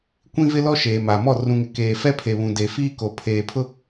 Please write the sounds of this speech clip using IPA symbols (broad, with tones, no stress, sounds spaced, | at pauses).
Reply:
kʷ ĩ˦ v ɪ˦ l ɔ˦ ʃ eː˨ m a˨ m ɔ˦˨ r ũ˨ ŋ ɪ˨ k eː˨ f ɛ˦ pʰ e˨ β ũ˨ d e˨ f iː˦ k o˨ pʰ eː˨ pʰ ʊ˦